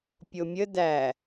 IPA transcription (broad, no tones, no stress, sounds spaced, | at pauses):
pʲ o mʲ ə d æ